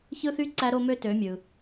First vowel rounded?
no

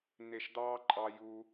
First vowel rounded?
no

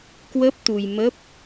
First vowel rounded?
no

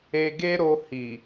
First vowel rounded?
no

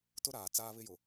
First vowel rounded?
yes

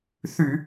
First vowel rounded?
yes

